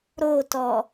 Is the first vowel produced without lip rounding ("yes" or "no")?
no